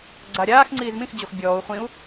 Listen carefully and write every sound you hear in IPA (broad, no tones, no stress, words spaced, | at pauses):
ɡ͡ǀaɾʲaːxŋ͡ǀiːz mĩxd͡ʑox bʲɔːu̯ χʷĩu̯